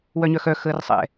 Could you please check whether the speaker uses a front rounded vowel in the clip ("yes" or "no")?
yes